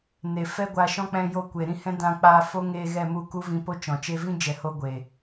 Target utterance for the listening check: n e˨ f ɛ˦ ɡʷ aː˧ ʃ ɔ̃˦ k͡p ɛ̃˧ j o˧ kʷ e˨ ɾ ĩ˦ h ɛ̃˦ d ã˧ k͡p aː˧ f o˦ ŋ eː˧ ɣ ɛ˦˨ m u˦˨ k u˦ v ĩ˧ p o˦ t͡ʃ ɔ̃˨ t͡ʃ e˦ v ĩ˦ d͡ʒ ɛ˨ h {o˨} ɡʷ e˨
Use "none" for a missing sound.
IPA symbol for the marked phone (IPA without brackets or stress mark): o˦